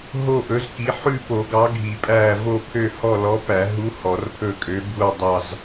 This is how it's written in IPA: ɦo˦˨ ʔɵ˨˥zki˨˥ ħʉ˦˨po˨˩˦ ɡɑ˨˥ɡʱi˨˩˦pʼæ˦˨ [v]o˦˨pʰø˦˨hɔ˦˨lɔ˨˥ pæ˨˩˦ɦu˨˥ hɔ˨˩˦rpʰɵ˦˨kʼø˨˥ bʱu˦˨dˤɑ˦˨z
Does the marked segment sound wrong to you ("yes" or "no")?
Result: no